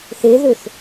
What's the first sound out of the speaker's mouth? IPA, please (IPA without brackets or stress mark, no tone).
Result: θ